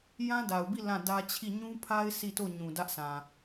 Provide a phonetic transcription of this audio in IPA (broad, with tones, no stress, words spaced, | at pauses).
jã˦da˨ʊ̯bi˦˨ lã˦˨dä˦t͡ɕʰi˦˨ ɲũ˦pʰa˦ɪ̯ sʰi˦˨to˦˨ ɲũ˨dä˦ʔsã˨